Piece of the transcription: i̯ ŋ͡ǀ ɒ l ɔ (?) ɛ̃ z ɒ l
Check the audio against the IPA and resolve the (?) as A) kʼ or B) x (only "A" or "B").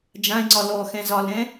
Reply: B